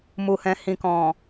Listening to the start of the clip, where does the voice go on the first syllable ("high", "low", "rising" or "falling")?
low